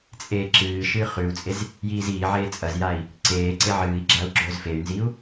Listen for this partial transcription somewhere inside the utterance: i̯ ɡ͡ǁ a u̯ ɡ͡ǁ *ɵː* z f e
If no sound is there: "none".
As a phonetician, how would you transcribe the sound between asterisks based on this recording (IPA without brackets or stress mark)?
ɵː